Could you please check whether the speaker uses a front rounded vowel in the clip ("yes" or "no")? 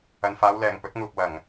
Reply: no